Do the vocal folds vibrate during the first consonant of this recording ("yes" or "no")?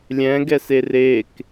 yes